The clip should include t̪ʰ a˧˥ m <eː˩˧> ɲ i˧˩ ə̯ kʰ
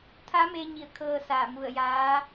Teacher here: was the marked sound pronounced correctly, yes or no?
no